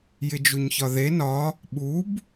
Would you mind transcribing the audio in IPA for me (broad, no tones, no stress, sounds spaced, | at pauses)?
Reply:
j ɪ d͡ʒ u ɲ ç ɒ ð e n ɒ | ɓ u b